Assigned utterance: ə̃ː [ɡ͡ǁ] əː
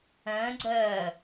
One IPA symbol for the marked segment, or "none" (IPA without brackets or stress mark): ɡ͡ǀ